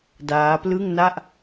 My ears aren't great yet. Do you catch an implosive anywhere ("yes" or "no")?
no